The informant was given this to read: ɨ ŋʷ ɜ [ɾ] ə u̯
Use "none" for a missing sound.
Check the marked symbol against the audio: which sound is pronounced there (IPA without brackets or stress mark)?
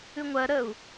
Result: ɾ